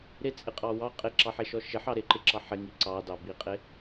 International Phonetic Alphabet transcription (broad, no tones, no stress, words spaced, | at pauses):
ɾɪt͡sʼɪqʼɑ wɑ qʼɪǁɑħeʃɔ ʃɪħɑ ɾɪǃɪǁɑ ħɪŋi ǀɑdɑ biqʼɪ